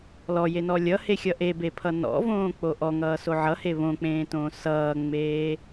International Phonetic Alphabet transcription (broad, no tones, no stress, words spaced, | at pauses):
lɔjenɔ lʲʌhexʲʌ ʔebepʰʌ nɔ̰võːk͡po ʔɔŋʌːso ʕʌhe βõk͡pẽːtõː sʌːŋ͡meː